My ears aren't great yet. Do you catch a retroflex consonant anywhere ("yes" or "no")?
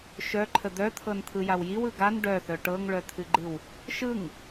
yes